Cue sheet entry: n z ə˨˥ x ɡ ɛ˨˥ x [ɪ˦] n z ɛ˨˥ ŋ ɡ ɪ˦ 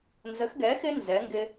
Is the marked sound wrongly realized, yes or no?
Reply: no